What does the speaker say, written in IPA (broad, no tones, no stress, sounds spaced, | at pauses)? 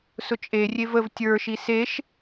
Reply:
s ʊ t͡ʃʼ e rʲ e v ə v tʲ ə˞ ʃ i s e ʃ